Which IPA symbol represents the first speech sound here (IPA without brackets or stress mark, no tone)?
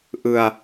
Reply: ʔ